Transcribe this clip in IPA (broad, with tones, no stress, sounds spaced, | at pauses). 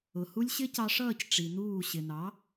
ʊ˨ h u˦ lʲ ɕ ɪ˦ c ɑ˧ ʂ ʌː˦˨ c ʈ͡ʂ i˨ n uː˦˨ ɕ ɪ˨ n ɑ˨˦